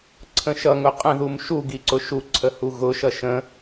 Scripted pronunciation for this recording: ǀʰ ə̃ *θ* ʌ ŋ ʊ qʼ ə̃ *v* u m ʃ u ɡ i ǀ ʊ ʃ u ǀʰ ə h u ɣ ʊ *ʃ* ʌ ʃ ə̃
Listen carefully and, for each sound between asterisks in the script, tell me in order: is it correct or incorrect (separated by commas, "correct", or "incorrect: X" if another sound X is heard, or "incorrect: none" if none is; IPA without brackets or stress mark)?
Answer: incorrect: ʃ, incorrect: ð, correct